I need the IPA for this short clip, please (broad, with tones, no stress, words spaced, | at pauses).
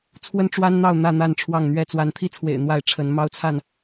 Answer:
t͡sʰwə˦n ʈ͡ʂwa˦nn̪ɑ˥˨ʊ̯ n̪ä˥˨n̪a˥˨n ʈ͡ʂʰwɑ˥˨ŋn̪ɥɛ˥˨ t͡swa˨˦nt̪ʰi˦t͡sʰwḛ˨˩ɪ̯ n̪wa˥˨ɪ̯ʈ͡ʂʰə˨˦n mɑ˦ʊ̯t͡sʰa˥˨n